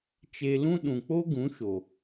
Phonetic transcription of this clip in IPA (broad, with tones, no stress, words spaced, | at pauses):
t͡ʃe˧lũ˦ ɗũ˨k͡po˦ɡũ˨˦ ʃo˨